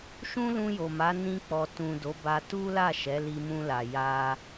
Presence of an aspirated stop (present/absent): absent